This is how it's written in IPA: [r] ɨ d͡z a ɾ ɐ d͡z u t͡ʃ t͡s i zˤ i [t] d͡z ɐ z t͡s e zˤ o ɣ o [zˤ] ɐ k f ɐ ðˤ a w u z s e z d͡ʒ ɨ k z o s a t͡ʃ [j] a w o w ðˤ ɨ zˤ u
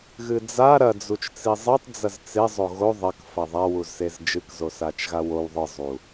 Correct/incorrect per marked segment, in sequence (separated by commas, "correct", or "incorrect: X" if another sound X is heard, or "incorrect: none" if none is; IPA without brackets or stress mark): incorrect: ɣ, incorrect: tˤ, incorrect: ðˤ, incorrect: ɣ